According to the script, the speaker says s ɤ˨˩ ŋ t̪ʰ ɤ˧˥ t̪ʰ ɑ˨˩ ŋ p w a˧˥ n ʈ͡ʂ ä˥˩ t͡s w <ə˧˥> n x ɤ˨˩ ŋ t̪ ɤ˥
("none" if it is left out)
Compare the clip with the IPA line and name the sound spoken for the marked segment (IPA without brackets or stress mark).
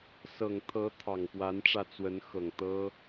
ə˧˥